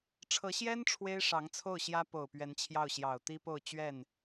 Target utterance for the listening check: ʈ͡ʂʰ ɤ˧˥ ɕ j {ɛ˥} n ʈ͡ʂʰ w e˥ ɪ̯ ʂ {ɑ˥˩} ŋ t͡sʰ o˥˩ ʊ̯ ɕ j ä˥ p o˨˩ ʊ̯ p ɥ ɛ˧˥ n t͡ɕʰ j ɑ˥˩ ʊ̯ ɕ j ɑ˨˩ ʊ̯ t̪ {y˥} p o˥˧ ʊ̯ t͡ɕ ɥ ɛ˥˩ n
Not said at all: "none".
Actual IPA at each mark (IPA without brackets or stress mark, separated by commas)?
ɛ˥, ɑ˧˥, i˥